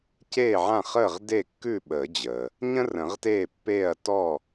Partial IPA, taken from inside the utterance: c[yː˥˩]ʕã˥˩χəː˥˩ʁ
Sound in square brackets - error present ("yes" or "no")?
yes